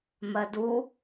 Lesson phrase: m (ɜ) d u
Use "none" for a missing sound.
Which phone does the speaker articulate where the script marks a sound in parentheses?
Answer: ɜ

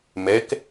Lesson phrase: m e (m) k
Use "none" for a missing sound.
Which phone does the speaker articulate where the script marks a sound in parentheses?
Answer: none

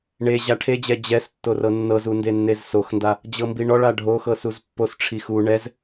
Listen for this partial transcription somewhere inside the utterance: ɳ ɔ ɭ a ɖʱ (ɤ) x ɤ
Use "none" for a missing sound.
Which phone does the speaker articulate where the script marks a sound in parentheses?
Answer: o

